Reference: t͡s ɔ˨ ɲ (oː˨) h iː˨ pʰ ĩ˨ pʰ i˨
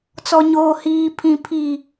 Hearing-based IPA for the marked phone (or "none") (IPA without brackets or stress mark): oː˨